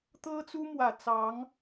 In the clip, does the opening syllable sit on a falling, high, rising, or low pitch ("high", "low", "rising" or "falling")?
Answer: high